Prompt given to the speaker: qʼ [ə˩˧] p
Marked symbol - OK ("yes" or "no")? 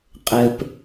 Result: no